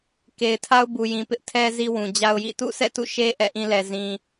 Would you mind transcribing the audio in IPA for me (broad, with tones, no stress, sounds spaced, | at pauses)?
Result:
k e˨ ɪ̯ tʰ a˦ ʊ̯ b u˨ j ĩ˨ p ɪ˦ ʔ tʰ ɛ˦ z i˦ w ũ˨ d͡ʑ a˦ ʊ̯ j ḭ˦˨ t ṵ˦˨ sʰ ɛ̰˦˨ t ṵ˦˨ ʃ e˦ ʔ ɛ̰˦˨ ʔ ĩ˦ l ɛ˨ z ĩ˨